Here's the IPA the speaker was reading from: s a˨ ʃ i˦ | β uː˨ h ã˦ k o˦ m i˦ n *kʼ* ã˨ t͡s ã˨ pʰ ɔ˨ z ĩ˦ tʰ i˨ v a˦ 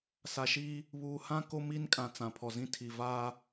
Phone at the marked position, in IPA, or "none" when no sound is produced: kʼ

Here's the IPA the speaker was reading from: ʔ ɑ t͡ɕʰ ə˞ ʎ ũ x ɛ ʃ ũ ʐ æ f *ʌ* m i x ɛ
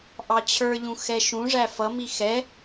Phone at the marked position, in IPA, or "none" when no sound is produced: ʌ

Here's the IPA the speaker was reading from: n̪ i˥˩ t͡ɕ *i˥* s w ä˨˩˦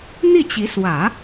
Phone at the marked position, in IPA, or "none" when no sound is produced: i˧˥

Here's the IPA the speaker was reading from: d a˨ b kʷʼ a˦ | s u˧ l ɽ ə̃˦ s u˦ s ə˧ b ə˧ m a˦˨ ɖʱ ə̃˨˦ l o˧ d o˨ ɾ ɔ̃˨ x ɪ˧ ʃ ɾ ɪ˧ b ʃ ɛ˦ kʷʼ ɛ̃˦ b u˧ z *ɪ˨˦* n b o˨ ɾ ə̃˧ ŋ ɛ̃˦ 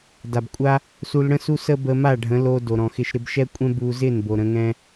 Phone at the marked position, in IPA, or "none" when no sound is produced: ɪ˦˨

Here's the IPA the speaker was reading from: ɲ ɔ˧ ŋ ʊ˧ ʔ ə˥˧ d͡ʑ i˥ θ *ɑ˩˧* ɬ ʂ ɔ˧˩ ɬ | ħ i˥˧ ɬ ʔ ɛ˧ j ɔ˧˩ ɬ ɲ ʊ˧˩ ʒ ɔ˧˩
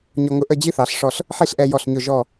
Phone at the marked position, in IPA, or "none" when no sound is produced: ɑ˩˧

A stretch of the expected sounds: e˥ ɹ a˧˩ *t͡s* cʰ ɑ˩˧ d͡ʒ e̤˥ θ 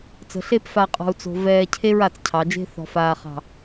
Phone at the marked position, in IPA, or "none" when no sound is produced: t͡s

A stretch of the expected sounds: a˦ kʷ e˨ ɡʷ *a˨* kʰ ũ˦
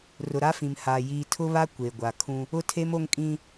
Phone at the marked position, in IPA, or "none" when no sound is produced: a˨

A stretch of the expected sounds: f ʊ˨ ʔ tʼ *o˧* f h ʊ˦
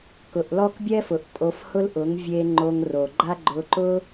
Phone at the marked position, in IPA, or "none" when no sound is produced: o˧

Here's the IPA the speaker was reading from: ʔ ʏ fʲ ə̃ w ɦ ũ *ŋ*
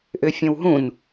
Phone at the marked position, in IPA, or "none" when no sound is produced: n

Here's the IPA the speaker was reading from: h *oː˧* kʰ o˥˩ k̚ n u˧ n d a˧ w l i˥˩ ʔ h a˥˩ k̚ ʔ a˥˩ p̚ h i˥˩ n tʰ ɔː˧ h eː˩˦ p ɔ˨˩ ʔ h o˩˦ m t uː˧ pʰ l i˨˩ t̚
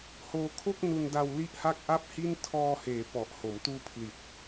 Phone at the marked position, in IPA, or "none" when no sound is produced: oː˧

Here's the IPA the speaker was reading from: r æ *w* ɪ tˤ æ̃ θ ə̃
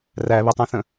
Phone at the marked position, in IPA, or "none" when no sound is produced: β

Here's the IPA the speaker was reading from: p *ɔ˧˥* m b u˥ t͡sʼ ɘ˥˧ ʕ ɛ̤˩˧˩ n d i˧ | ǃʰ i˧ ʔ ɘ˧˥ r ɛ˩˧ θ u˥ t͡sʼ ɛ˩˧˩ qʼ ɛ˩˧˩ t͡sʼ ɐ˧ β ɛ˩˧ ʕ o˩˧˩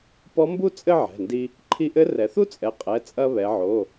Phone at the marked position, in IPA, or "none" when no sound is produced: ɔ˧˥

